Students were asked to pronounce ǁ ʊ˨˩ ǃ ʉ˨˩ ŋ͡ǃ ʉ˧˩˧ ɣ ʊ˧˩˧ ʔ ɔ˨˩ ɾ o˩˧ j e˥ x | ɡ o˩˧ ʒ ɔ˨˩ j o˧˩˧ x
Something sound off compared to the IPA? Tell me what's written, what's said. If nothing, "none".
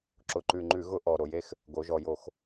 none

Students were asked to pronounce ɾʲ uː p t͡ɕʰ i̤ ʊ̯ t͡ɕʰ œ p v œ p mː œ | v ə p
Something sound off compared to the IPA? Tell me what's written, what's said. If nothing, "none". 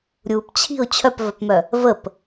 mː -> m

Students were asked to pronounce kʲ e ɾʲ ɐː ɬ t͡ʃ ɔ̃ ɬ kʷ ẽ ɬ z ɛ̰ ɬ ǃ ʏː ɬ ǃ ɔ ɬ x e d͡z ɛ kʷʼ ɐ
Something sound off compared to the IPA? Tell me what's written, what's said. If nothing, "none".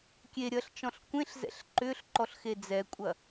none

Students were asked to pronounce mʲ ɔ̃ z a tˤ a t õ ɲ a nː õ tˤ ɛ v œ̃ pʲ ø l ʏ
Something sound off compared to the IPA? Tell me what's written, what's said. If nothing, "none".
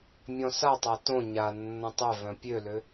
z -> s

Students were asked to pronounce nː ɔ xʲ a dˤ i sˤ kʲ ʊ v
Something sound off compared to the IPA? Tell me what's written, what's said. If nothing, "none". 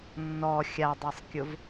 none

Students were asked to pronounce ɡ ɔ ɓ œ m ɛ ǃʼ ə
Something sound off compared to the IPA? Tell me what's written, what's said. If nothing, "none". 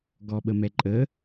œ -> ə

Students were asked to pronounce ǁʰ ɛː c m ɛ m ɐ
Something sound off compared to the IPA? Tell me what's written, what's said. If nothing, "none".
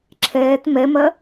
c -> t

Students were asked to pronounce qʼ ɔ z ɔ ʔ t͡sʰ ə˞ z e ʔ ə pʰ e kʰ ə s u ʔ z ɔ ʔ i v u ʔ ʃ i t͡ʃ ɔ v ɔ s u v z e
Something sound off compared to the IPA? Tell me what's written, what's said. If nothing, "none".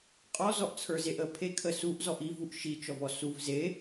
none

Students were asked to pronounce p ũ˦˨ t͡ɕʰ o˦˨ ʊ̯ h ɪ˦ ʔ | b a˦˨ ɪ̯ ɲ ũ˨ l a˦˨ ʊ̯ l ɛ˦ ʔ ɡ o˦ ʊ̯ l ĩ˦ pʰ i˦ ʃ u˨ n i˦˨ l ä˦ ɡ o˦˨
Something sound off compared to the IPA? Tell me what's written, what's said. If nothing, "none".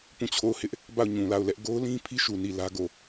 ɪ̯ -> ʊ̯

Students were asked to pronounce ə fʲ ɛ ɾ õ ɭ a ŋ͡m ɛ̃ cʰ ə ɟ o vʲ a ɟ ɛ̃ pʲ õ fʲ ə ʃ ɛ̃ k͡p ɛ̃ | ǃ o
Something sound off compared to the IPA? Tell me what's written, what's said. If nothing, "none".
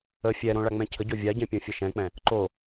none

